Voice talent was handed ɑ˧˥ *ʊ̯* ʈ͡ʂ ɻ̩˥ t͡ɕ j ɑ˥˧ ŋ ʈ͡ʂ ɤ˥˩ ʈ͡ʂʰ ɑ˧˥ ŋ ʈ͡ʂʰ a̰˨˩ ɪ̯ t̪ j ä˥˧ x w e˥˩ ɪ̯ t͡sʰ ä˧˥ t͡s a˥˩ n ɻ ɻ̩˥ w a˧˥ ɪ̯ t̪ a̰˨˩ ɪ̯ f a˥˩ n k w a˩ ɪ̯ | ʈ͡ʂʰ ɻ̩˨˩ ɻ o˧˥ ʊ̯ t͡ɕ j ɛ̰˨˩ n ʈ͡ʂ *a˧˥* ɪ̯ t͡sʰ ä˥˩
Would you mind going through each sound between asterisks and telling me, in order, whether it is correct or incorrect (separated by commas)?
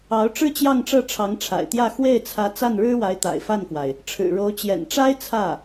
correct, incorrect